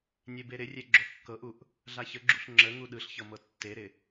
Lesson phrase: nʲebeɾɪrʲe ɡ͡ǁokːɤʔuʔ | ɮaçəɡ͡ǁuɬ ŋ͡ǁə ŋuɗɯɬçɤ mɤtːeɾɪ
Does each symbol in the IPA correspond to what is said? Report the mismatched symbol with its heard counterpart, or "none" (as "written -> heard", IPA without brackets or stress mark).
none